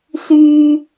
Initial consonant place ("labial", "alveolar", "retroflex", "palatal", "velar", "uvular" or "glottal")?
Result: alveolar